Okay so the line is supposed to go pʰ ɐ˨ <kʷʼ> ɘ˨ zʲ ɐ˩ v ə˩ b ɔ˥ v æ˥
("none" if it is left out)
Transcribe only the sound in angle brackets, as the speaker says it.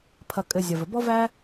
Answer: kʼ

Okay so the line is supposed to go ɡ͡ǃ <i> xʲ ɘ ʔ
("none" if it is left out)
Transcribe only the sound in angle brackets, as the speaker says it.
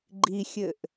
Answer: i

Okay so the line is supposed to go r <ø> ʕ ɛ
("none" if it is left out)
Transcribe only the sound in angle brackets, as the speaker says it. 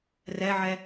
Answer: ɛ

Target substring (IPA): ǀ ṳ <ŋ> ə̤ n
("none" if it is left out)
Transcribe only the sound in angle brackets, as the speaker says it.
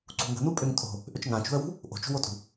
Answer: ŋ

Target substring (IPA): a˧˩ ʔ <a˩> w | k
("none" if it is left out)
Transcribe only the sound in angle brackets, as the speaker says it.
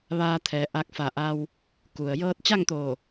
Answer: a˧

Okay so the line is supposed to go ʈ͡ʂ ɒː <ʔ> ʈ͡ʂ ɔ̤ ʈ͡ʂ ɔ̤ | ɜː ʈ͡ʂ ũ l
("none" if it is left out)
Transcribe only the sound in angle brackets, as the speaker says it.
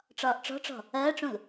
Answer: ʔ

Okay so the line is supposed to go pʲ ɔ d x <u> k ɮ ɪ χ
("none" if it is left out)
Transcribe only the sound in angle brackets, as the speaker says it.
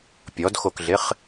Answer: o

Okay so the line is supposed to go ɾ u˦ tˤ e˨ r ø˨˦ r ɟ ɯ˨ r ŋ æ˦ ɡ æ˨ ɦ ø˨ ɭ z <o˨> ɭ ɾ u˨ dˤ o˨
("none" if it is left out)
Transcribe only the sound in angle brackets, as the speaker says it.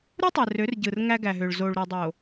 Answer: o˨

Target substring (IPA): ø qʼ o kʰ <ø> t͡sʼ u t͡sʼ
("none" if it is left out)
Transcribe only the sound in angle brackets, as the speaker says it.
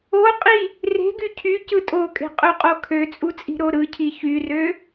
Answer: ø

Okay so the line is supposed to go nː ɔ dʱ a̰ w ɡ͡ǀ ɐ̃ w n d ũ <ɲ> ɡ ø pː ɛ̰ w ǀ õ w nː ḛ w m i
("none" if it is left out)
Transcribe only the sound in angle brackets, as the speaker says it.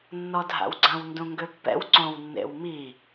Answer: ŋ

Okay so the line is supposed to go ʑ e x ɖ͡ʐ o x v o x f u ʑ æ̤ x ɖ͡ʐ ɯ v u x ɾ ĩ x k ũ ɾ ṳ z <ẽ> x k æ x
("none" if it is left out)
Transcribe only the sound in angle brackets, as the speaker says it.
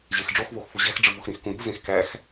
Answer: ẽ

